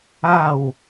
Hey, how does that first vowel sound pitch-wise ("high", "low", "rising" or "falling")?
falling